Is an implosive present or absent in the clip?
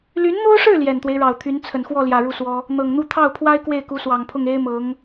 absent